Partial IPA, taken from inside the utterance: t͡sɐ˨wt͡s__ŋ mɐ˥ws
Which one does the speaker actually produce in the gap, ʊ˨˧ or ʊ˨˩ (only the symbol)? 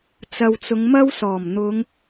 ʊ˨˧